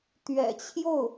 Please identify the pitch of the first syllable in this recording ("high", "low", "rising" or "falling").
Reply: low